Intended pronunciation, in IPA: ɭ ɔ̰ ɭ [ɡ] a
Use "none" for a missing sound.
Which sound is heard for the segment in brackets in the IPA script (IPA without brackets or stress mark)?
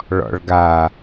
ɡ